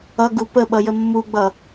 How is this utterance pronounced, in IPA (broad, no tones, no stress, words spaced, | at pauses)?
ʌɡu pəɓʌjə mːuɡ͡bʌ